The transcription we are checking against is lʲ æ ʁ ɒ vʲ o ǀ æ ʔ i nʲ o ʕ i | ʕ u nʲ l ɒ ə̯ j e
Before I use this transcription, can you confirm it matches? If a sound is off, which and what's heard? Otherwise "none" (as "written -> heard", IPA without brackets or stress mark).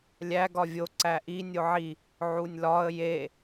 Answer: ʁ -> ɡ